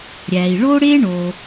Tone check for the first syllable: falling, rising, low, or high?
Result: low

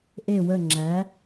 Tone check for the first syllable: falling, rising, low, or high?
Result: falling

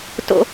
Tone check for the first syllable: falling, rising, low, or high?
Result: high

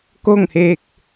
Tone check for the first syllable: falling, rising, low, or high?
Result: falling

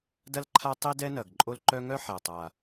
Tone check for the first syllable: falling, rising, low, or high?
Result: high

